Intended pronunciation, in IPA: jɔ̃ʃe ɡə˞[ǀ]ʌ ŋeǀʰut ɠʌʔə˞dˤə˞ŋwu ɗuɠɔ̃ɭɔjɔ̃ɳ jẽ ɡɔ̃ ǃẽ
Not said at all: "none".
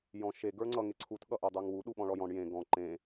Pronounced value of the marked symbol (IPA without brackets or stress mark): ŋ͡ǀ